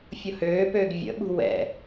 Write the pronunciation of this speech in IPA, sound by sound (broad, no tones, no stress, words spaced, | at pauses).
fʲʊhøːpøːɡ vʲə̰ɓṳ wɛ̰